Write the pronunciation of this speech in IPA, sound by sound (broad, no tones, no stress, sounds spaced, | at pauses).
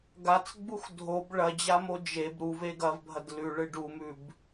ɡ a t͡s ɡ͡b u x dʱ o b ɭ ɐ d͡ʑ a m o d͡ʒ e b ɾ u v e ɡ ɐ v bʱ ɐ d l ʉ ɭ ɨ ɖ u m ʉ b